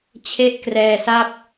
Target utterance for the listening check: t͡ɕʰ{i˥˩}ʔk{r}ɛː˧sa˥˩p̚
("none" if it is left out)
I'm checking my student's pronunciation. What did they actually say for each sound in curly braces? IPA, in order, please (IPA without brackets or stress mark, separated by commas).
e˥˩, r